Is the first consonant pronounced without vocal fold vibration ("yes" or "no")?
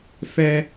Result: yes